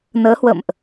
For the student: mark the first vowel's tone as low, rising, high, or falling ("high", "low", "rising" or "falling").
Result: rising